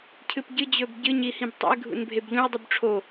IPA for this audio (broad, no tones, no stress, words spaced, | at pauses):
cʰɨpɟɨd͡ʑɵb ɟɨɲi hĩbtˤo̰ɪ̯ɡʱṵn bʱebʎũə̯dˤub ʈ͡ʂʰo